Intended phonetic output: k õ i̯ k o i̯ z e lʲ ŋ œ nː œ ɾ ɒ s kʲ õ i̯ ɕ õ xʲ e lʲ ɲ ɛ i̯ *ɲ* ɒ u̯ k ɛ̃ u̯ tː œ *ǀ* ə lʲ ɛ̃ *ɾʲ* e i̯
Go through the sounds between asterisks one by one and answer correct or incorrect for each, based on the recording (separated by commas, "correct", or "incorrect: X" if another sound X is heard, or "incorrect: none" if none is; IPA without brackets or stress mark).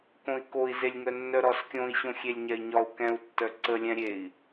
correct, correct, correct